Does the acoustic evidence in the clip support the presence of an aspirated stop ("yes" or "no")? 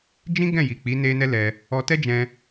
no